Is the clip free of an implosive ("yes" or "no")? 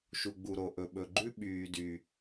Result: no